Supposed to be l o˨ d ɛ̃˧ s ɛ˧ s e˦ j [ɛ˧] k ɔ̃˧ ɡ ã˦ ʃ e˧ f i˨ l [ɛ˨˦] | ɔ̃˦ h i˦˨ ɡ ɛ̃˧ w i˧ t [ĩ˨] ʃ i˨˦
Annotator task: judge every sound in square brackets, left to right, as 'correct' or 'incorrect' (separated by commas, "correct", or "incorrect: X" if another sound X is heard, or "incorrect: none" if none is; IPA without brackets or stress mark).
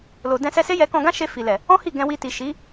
correct, incorrect: ɛ˨, incorrect: i˨